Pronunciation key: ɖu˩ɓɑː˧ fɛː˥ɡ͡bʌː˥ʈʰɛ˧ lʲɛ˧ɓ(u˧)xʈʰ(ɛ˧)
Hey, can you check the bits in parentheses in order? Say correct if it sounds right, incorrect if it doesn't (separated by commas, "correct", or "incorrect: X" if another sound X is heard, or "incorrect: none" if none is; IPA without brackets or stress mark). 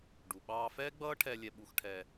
correct, correct